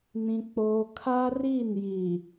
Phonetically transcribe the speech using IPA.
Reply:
n ĩ˦ k͡p oː˦ kʰ a˦ r i˦˨ n j i˨

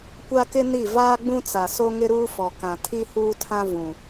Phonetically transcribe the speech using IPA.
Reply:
kʷ a˦ k ɪ˦ n i˦˨ v aː˦ ɡ͡b ũ˦ t͡s a˨ s o˦ ŋ ɪ˦ ɾ uː˦ f ɔ˨ k ã˨ tʰ i˦ h uː˦ tʰ ã˦ v ũ˨

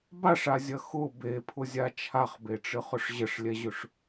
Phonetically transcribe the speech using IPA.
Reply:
b a ʂ a zʲ ɐ x ʊ b e pʰ ʊ zʲ a t͡ʃʰ a χ b e ʈ͡ʂ ɨ χ ʊ ʂ ʑ ə ʂ lʲ ɛ ʑ ʊ ʂ

